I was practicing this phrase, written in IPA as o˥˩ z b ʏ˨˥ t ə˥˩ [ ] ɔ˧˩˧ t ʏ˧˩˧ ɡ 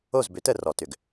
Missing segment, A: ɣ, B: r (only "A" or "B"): B